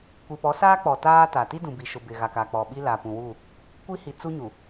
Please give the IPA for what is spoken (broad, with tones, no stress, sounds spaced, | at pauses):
kʷ i˨ p ɔ˨˦ s aː˦ k͡p ɔ˨ t aː˦ t a˨ t i˦ d ũ˨ b i˨ ʃ ʊ˨ b ɪ˨ ɣ a˨ k a˨ k͡p ɔ˨ ɓ i˦ l a˨ p ũ˨ w u˦˨ | kʷ i˦ h i˨ t͡s u˦ ɲ u˨